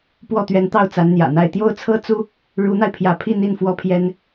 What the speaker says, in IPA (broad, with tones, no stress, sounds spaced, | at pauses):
p w ɔ˥˩ t̪ ɥ ɛ˧˥ n t̪ ɑ˥˩ ʊ̯ t͡s a˧˥ n n̪ j ä̰˨˩ n̪ a˥˧ ɪ̯ t̪ j o˥˩ ʊ̯ t͡sʰ ɤ˥ t͡s u˥ | ɻ u˧˥ n̪ a˧ ɪ̯ pʰ j ä˧˥ pʰ i˥˧ n̪ i˥˩ n f w ɔ˥ pʰ j ɛ˥ n